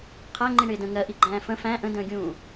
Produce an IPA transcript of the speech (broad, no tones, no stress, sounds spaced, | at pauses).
qʰ æ ŋ͡ǃ i ɳ ɪː d ə̃ ŋ ɜ ʔ i ɡ͡ǃ æ̃ː f ə̃ f æ̃ ʔ ə̃ d ə̃ː ɡʲ ũː